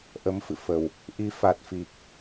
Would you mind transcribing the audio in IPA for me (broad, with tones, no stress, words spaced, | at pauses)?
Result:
ʔə˨˦mfɨ̰˧˨fə˨˩w | ʔi˨˦ fa˨˩t̚fi˨˩k̚